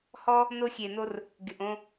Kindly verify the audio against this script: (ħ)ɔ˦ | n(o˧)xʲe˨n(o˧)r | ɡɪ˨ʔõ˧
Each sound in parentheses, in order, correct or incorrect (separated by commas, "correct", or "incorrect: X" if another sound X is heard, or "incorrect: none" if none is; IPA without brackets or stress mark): incorrect: h, correct, correct